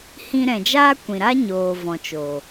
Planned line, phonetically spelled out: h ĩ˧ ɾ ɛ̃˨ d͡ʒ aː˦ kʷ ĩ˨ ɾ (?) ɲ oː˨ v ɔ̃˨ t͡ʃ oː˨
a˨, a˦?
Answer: a˦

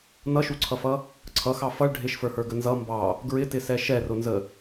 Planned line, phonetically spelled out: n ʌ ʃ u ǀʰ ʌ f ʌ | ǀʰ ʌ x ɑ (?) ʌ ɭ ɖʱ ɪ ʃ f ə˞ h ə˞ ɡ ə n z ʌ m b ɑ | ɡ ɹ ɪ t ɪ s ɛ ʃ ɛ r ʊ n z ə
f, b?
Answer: f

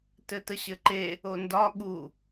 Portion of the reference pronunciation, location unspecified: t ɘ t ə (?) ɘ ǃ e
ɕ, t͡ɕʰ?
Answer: ɕ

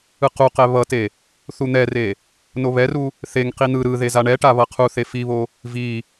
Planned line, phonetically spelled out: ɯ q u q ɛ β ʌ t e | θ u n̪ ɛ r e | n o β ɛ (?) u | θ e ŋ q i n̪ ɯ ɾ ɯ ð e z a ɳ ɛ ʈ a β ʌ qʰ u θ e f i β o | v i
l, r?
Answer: r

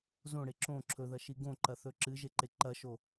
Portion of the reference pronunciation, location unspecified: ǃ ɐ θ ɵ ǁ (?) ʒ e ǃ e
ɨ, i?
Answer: ɨ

